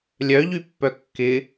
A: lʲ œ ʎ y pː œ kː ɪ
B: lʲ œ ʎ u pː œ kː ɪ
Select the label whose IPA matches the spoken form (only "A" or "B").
A